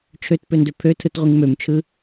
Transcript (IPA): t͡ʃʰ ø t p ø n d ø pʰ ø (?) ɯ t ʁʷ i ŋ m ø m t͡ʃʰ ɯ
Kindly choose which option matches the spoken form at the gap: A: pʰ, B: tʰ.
B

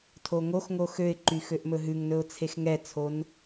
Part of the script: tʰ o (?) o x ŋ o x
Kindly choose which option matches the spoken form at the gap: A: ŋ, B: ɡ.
A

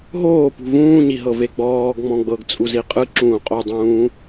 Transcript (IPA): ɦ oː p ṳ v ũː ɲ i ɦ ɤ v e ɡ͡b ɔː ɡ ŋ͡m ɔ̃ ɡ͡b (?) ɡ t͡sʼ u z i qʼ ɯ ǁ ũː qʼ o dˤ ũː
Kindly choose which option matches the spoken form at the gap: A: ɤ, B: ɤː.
A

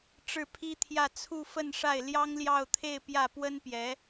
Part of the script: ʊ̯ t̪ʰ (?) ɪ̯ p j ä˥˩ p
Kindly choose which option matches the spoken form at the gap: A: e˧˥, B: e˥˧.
B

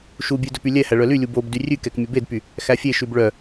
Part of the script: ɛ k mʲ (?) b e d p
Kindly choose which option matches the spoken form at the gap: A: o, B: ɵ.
B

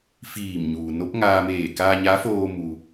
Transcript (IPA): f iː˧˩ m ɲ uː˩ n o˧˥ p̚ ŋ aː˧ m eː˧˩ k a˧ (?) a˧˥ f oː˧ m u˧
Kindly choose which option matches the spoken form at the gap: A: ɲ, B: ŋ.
A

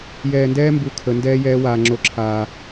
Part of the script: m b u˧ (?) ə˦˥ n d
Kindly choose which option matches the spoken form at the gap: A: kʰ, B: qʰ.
A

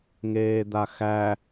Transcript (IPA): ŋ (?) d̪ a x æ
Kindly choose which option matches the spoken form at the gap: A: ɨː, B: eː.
B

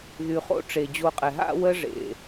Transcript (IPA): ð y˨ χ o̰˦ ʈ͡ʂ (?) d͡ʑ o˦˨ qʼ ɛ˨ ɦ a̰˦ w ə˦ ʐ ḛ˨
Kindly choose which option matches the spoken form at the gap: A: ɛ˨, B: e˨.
B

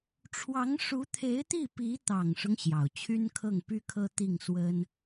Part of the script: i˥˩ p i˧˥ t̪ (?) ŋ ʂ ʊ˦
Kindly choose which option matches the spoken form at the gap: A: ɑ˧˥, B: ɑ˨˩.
B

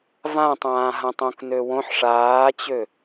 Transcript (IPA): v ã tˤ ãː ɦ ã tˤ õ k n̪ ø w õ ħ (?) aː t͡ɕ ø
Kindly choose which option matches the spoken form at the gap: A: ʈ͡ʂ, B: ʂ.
B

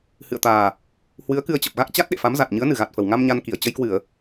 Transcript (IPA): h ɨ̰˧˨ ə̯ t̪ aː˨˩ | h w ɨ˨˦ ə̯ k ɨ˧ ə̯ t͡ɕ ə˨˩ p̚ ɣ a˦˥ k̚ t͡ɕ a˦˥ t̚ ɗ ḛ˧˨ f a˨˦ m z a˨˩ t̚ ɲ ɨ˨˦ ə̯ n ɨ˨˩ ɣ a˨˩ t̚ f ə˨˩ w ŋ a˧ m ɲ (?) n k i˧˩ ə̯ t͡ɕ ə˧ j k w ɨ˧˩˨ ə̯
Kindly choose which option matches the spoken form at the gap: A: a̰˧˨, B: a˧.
B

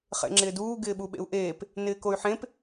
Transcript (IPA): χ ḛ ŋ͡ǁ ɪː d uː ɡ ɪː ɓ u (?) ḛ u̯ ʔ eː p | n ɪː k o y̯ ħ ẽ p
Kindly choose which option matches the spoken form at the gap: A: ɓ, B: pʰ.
A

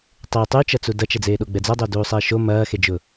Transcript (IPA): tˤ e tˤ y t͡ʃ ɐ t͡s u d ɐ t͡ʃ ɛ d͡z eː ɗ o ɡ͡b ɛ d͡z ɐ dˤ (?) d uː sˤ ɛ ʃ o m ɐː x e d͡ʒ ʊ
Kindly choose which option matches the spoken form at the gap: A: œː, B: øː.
B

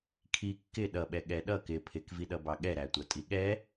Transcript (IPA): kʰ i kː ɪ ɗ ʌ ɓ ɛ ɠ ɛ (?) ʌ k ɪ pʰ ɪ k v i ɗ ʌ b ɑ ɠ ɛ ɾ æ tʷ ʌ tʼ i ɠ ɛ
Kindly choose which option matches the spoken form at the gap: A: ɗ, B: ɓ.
A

